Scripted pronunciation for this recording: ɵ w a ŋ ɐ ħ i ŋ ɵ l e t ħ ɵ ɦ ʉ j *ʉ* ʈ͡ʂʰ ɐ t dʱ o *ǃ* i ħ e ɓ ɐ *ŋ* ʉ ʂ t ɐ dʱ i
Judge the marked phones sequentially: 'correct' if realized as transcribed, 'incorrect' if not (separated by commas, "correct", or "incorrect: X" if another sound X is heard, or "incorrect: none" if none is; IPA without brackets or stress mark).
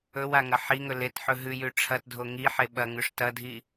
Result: correct, incorrect: ŋ, correct